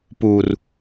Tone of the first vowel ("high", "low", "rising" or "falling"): low